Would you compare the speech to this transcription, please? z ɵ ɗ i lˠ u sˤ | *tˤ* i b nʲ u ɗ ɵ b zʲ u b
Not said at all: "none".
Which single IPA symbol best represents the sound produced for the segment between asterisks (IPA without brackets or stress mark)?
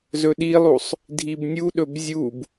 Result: dʱ